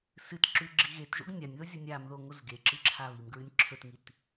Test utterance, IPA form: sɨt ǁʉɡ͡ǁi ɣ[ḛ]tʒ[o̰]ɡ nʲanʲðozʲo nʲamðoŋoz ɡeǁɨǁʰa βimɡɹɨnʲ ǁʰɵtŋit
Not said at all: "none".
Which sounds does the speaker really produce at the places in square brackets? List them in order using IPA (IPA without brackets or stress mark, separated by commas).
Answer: e, o̰